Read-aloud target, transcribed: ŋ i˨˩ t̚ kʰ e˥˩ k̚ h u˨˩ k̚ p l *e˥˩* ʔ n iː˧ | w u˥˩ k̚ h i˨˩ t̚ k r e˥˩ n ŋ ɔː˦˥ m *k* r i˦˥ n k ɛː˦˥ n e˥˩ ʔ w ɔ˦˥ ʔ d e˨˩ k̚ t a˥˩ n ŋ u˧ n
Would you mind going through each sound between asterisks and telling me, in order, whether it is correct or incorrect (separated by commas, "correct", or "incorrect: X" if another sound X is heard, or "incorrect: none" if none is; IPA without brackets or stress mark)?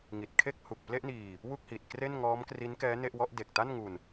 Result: correct, correct